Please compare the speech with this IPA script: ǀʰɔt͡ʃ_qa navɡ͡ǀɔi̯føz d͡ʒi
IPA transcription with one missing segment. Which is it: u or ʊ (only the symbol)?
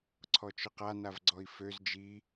ʊ